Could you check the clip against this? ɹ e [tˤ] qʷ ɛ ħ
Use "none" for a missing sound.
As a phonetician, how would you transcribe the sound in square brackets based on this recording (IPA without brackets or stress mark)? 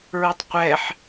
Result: tˤ